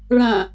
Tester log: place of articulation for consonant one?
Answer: retroflex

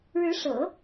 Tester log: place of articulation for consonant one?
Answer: retroflex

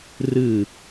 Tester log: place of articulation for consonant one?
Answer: alveolar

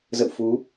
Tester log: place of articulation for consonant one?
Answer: alveolar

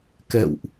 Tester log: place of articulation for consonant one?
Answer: velar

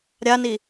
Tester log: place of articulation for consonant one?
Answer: alveolar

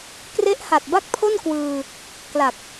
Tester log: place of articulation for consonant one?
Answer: velar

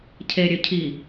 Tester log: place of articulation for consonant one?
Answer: palatal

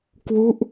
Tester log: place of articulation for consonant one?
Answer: velar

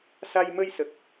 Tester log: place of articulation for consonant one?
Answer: alveolar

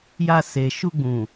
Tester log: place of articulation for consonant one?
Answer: palatal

